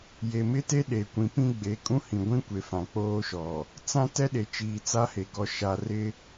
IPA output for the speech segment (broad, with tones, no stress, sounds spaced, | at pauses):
j e˨ m ɪ˦ t e˦ ɗ e˨ kʷ ĩ˨ p ĩ˦ ɡ͡b e˨ kʼ ũ˦ h ĩ˨ ɡʷ ĩ˦ kʷ e˨ f ã˨ k͡p oː˦ ʃ ɔ˨ | t͡s ã˦ t ɛ˦ ɗ e˨ t͡ʃ iː˨ t͡s a˦ h e˨ ɡ ɔ˨ ʃ a˨ r ɪ˦